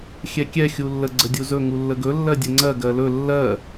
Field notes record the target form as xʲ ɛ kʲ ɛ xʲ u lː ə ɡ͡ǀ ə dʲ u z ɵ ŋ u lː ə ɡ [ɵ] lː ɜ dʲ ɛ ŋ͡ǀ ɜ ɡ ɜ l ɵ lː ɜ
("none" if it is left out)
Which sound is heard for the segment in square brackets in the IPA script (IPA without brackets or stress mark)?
ɵ